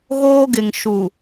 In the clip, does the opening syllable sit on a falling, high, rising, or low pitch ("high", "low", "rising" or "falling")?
high